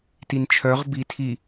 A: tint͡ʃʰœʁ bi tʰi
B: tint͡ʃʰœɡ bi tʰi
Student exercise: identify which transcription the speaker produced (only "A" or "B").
A